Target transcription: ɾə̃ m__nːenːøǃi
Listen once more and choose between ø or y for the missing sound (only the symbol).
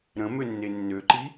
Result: ø